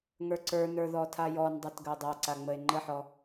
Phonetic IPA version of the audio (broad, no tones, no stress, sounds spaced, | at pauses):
ŋ ə˞ ǀ ə˞ n ə˞ ð ɔ tʰ a j ɔ n dˤ a t ɡ ə o̯ dˤ a ǀ a ŋ͡m ə e̯ ŋ͡ǃ ə ħ ɔ